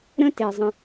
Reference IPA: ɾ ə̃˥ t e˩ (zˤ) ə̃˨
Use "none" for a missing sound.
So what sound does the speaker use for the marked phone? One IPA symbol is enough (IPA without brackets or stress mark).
zˤ